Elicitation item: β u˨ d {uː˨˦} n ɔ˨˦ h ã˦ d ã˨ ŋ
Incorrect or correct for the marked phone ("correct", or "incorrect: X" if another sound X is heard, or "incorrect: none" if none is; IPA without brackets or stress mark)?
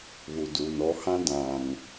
incorrect: uː˨